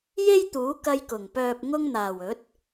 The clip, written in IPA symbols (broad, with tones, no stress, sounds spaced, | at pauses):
j e˥ j t̪ uː˨˥ k ɐ˧ j k ʊ˨˩ ŋ p œː˨ p̚ ŋ ʊ˧ ŋ n̪ aː˨˩ w ɵ˨˥ t̚